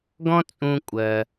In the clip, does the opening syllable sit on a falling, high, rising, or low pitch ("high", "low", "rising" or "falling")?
high